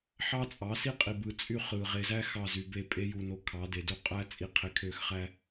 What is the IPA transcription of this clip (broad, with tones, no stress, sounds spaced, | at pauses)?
ħ ɑ˦ t͡sʼ ɑ˨˦ s i˦ qʼ i˨ b ɯ˨ t͡sʼ y˦ χ ɯ˨ ʁ e˨ z æ˦ x ɑ˦˨ z y˨ b e˦˨ pʼ e˦ j u˨ n o˨ kʰ ɑ˨˦ d e˨ d u˦ qʼ æ˦ t͡sʼ i˨ qʰ e˨ kʰ ø˦˨ x χ æ˦